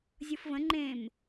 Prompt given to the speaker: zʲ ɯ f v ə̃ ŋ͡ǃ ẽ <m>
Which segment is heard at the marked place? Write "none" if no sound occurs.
m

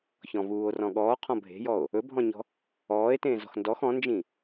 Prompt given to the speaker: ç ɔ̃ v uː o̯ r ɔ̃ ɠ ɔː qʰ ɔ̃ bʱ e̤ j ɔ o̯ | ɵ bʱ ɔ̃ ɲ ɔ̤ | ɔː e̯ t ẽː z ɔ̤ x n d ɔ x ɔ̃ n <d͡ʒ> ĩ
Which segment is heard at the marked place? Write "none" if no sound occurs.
d͡ʒ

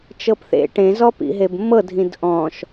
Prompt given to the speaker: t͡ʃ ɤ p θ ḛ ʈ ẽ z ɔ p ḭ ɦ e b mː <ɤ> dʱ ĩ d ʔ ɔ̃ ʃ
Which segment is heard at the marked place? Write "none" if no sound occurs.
ɤ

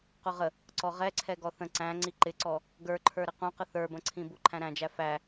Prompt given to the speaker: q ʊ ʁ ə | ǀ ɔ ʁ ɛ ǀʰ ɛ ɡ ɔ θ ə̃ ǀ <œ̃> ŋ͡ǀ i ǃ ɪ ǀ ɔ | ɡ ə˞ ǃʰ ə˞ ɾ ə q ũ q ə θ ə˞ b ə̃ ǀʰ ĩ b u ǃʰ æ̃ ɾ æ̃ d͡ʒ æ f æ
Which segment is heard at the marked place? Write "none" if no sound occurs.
æ̃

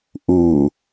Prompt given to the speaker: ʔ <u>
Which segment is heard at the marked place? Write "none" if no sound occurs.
u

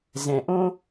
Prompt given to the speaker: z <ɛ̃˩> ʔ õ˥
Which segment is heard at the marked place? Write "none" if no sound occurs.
ɛ̃˩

